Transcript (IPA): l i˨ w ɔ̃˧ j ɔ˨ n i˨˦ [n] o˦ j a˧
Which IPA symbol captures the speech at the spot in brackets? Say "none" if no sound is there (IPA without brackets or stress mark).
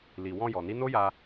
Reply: n